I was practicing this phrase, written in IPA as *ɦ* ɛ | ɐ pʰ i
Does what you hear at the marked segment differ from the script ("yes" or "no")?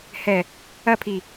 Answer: yes